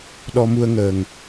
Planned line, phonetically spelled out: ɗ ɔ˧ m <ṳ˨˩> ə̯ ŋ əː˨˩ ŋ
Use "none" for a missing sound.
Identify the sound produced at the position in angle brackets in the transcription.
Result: u˧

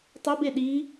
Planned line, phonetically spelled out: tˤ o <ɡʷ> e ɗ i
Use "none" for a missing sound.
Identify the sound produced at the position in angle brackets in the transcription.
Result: b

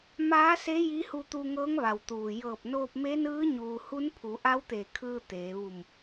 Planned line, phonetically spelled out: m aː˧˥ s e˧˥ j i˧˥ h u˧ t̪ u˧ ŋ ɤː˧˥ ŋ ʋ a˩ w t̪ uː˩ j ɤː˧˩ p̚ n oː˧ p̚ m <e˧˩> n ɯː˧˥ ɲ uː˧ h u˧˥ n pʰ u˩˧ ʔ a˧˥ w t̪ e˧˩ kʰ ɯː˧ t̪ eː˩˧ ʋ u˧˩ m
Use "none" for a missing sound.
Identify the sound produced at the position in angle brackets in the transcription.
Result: e˧˥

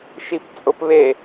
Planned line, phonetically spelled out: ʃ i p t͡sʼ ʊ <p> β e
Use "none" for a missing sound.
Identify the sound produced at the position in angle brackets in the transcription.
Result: p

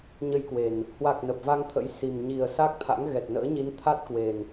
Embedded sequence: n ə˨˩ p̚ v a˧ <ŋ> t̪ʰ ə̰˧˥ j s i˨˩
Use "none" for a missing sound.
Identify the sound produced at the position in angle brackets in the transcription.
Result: ŋ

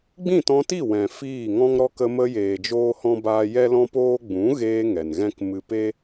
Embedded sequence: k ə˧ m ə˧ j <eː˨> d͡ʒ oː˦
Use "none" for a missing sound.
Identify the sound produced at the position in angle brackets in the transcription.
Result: eː˨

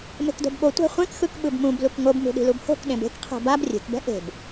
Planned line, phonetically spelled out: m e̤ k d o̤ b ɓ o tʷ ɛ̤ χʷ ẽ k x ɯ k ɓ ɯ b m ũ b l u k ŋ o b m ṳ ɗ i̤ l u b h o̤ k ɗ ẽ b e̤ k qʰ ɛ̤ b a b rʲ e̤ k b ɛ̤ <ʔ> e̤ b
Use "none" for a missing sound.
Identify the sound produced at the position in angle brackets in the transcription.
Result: ʔ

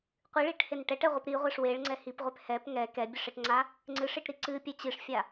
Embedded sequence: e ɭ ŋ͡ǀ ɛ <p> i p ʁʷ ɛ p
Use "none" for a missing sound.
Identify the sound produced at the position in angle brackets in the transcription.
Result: h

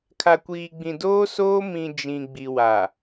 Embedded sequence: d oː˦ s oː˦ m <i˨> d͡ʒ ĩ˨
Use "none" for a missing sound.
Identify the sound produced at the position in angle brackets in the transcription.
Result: ĩ˨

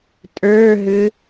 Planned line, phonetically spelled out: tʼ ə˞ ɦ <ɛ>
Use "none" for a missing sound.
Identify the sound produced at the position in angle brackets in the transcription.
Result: ʏ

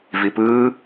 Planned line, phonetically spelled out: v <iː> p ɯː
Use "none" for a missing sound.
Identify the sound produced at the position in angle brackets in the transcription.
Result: i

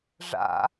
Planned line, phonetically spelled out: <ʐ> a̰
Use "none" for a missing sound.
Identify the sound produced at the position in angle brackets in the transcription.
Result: ʐ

